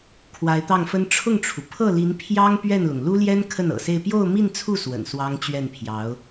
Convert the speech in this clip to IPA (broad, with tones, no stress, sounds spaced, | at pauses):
kʰ w a˧˥ ɪ̯ t̪ ɑ˥˩ ŋ f ə˥ n ʈ͡ʂʰ ʊ˥˩ ŋ ʈ͡ʂʰ u˩ pʰ ɤ˥˩ l i˧˥ n pʰ j ɑ˥ ŋ p ɥ ɛ˥˩ n l ʊ˩ ŋ l u˥ l j ɛ˥ n kʰ ə˥˩ n ɤ̰˨˩ s e˥˧ ɪ̯ p j o˥˧ ʊ̯ m i˥˧ n t͡sʰ u˥˩ s w ə̰˨˩ n s w ɑ˥ ŋ t͡ɕ ɥ ɛ˥˩ n pʰ j ɑ˧˥ ʊ̯